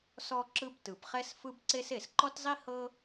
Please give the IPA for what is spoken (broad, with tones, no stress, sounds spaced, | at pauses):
s ɔ˥ ǁ ɯ˥ b t ɯ˩ b χ ɛ˥ s f ɯ˥ b ǀ e˥ s e˩ s ǃ ɔ˥ t zˤ i˥ h ɤ˥